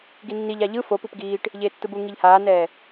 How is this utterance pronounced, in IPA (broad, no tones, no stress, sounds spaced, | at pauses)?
ɡ i nː i ʎ a ʎ ɯ f o p ɯ p ɡ iː ʈ | ʎ eː tː ɯ b u ŋ i ʎ h aː n ɛː